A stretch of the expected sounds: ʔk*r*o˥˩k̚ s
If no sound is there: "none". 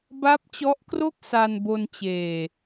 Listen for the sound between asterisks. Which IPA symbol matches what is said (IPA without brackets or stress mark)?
r